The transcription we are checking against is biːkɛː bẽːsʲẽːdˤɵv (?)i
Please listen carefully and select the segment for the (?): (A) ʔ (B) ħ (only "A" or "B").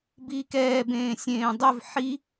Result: B